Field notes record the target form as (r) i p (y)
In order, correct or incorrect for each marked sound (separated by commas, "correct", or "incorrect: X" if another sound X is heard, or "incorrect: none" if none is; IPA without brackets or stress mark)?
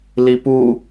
incorrect: l, incorrect: u